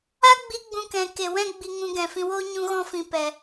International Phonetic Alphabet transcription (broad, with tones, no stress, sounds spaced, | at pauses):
a˦ ɡ͡b i˧ ɡ͡b ũ˧ k ɛ̃˨ k e˨ w ɛ̃˦ ɡ͡b i˧ ŋ ũ˧ ɡ ɛ̃˨ f ĩ˧ w oː˦ ɲ ũ˧ ɣ ɔ̃˧ f ĩ˨ p ɛ˨